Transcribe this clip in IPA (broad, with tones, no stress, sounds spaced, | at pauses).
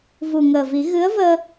v u˨˩ ŋ əː˨˩ v i˨˩˦ ɣ ɨ˧˥ ə̯ v əː˧